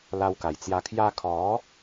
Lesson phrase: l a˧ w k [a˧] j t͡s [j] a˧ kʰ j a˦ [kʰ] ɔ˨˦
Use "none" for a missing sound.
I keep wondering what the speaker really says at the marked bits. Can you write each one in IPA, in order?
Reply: a˨˩, j, kʰ

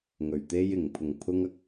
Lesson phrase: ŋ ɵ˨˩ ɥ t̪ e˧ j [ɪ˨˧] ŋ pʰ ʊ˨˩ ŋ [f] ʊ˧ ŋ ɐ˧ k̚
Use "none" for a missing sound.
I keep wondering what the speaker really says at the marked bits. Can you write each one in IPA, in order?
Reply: ɪ˨˩, pʰ

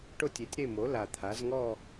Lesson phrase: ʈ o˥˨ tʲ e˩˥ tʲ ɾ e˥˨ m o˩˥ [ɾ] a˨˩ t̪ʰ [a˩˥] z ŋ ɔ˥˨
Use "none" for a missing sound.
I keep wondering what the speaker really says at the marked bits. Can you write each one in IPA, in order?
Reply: l, a˩˥

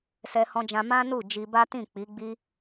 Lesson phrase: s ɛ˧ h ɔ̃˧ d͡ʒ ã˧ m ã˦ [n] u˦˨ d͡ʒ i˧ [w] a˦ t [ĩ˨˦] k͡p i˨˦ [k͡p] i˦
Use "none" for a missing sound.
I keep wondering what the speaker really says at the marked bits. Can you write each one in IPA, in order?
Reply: n, b, ĩ˦˨, ɡ͡b

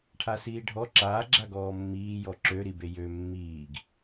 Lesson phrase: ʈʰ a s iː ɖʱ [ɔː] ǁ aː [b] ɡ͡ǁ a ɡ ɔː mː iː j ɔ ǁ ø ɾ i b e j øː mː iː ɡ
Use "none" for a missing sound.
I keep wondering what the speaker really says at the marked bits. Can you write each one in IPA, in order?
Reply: ɔ, none

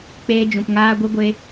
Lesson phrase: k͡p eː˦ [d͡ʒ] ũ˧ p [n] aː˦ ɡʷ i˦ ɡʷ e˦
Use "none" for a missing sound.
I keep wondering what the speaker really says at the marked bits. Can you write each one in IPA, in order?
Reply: d͡ʒ, ŋ

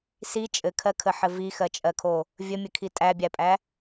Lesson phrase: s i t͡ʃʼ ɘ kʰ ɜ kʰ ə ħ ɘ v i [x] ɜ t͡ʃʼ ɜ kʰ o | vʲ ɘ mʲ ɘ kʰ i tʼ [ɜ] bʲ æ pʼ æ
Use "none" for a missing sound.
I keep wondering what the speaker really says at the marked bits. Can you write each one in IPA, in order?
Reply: x, æ

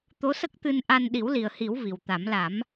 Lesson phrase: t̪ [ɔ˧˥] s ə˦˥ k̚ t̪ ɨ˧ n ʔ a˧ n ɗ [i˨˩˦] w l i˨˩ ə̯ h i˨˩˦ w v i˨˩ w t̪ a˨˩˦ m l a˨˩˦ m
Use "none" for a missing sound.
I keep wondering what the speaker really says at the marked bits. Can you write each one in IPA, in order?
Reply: o˧˥, i˨˩˦

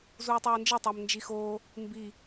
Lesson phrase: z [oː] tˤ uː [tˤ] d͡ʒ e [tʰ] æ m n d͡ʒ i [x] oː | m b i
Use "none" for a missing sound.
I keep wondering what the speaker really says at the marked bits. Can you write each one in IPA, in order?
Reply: uː, n, tˤ, x

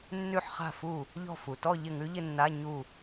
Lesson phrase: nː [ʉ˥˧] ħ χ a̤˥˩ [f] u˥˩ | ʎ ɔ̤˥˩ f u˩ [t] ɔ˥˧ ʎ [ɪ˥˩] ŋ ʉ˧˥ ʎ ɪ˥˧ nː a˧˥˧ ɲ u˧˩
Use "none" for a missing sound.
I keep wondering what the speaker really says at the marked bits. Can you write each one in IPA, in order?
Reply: ʉ˥˧, f, t, ɪ˥˩

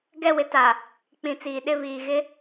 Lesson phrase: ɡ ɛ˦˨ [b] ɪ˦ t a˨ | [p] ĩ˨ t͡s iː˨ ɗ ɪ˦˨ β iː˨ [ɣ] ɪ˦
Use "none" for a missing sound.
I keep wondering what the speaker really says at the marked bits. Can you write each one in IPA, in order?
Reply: w, k͡p, ɣ

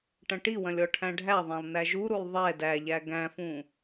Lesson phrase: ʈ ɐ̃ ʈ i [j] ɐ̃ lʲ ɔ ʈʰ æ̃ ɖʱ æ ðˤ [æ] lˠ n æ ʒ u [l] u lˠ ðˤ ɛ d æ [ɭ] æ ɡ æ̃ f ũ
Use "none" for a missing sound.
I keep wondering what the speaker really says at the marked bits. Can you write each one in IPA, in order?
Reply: w, æ̃, ɾ, ʎ

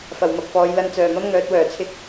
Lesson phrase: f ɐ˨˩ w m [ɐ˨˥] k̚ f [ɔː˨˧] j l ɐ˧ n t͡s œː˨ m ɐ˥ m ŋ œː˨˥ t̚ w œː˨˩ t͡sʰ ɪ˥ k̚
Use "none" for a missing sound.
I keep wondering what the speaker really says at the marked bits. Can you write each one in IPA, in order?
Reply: ɐ˨, ɔː˨˧

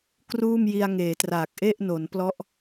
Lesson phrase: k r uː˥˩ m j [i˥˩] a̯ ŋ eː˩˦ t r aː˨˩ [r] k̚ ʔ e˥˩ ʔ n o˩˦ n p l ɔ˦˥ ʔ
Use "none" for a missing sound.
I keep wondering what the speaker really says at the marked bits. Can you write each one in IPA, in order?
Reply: i˧, none

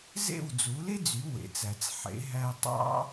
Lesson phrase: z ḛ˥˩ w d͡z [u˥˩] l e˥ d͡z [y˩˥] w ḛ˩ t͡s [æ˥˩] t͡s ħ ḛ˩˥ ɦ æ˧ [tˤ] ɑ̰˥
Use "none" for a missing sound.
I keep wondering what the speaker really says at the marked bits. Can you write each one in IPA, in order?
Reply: u˩˥, y˩˥, æ˩, tˤ

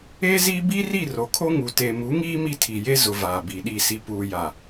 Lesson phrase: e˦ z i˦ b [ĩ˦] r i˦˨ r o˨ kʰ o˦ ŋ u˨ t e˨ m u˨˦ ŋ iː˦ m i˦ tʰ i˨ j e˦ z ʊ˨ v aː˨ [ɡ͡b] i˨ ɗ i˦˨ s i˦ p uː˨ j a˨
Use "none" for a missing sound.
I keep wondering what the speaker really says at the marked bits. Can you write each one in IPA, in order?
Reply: i˦, b

